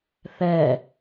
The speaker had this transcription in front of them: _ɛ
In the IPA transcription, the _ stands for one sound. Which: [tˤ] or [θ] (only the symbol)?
θ